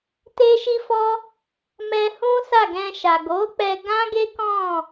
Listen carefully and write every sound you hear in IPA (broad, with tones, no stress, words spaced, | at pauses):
te˦ʃi˦fɔ˦ | mɛ˧hũ˦ sa˦˨ɡɛ̃˧ʃa˨ ɡo˨˦k͡pɛ˧ ɡã˦ɡe˦kɔ̃˦˨